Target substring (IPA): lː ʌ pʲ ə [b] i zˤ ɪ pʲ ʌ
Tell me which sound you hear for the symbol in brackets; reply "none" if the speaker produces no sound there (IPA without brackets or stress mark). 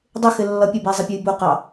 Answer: b